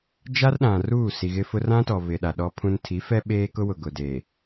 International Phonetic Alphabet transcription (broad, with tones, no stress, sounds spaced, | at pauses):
d͡ʒ a˦ r ɗ ã˨ r uː˦˨ s i˨ ɣ ɪ˦ f ʊ˦ r ã˦ t ɔ˨ β ɪ˨ ɗ a˨ ɗ ɔ˦ pʰ ũ˦ n tʰ i˨˦ f ɛ˦ ɓ eː˦ k ʊ˦ w ʊ˨ ɡ ʊ˨ d eː˨